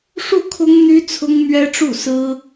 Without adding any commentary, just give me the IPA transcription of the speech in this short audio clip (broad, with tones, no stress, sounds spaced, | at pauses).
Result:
ʂ u˥˩ kʰ ʊ˥ ŋ n̪ y˥ t͡sʰ ʊ˥ ŋ m ɥ ɛ˥ ʈ͡ʂ u˥˩ s ɹ̩˥